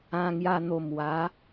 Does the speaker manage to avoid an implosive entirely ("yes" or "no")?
yes